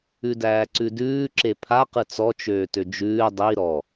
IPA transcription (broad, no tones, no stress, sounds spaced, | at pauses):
ʉ d æː ǀ ʉ d ʉː ǁ e pʰ a q ɯ t͡s ɔ t͡ʃ øː t ø d͡ʒ ʉː dˤ i ɾ ɔ